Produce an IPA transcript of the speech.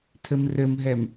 tʰɘmrɘmɦɛm

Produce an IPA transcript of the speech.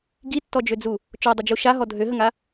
ɡitːɔd͡ʒød͡zu | t͡ʃɔdˤəd͡ʒu ʃaɦɔ dʱøɦəŋa

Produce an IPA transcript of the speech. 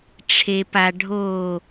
ʈ͡ʂʰe pa ɖʱo

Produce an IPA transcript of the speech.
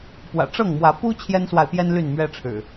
pwä̰˨˩ʈ͡ʂɤ˥˨ŋmwä˨˦ pu˦ t͡ɕʰjɛ˦nswa˨ɪ̯pjɛ˦n ly˥˨nmɥɛ˦ʈ͡ʂʰɻ̩˨˩

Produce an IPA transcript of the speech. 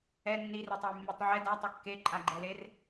ɛ nːiretˤʌjmːitˤ ʕɛ datˤʌ kːeǃʼaɡ͡ǃɛler

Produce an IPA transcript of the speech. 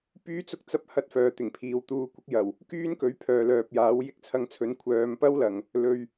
pyː˥t͡sʊ˥k̚ t͡sɐ˥p̚ hɐ˥t̚fœː˨t̪ɪ˨˩ŋpʰiː˨w t̪uː˨˧ kʷɪ˨˥k̚jɐ˨˩w | kyː˥nkɵ˨˥ɥ pʰœː˨lœː˨p̚jaː˨˥w jɪ˥k̚ t͡sʰɐ˧ŋt͡sʰɵ˨˥nkʷʰœː˨˧m pɐ˥wlɐ˨˩ŋ | lɵ˨ɥ

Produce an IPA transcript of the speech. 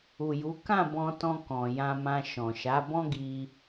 u˨ju˨˦ kã˦˨bɔ̃˧tɔ̃˧ kɔ̃˨jã˧mã˧ ʃɔ̃˨ ʃa˨˦bɔ̃˦ɡi˧

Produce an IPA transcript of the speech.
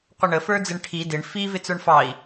qʷəɳəfə˞d͡zɪɳ ʈʰi dɪɳ fivɪ t͡sə˞ɳfɑi̯

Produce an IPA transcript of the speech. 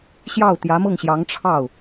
ɕjɑ˥˩ʊ̯t̪jä˧˥mɤ˥˩ŋɕjɑ˧˥ŋ ʈ͡ʂʰɑ˥˩ʊ̯

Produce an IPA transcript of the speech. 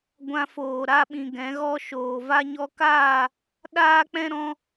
ɡʷã˧foː˨ɾa˧ɓĩ˨ ɡɛ̃˨˦ɣɔ˦ ʃoː˨va˦ɲɔ˦ kaː˦˨ | ɗaː˦k͡pɛ̃˦ ɾɔ̃˦

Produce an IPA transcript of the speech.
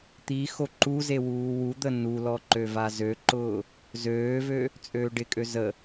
t̪i xoǃuze wuːwud̪ə nulɔ ǃøvazøǃʊː | zøːvø | t͡sʼøːɖɪkʼø zə

